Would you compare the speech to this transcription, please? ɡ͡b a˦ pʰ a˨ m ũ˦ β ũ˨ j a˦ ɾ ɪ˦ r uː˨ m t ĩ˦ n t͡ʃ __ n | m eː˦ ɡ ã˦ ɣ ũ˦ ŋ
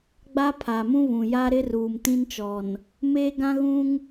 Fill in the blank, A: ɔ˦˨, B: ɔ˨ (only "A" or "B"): B